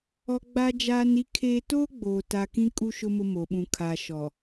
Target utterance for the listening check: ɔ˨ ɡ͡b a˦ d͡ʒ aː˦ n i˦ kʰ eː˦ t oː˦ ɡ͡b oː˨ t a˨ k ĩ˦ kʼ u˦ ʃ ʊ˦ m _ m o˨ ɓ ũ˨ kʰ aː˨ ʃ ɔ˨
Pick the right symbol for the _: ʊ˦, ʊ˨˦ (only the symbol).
ʊ˦